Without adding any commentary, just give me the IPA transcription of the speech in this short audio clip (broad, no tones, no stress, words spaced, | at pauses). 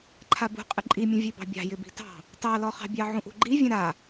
ǃʰabṳqʼɪ ǃʼimʲũ vʲebɑ̤bʲɑ̤ jɪbi̤tɑ̤ | tɑlɔχɑ̤bʲɑ ʕũʔṳɡ͡ǃivʲɛ̃ ɾa